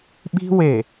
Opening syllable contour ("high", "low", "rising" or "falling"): high